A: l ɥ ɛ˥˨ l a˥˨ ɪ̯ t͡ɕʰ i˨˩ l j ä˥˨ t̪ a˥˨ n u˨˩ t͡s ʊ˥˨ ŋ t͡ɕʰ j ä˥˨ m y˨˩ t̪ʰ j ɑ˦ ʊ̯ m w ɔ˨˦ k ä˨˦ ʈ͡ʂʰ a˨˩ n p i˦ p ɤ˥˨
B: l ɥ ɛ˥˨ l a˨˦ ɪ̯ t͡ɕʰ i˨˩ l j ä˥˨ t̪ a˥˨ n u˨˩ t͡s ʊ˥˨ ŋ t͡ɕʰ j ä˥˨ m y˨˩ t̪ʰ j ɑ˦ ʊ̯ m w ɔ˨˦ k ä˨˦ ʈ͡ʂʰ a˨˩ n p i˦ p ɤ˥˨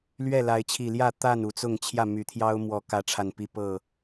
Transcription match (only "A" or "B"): B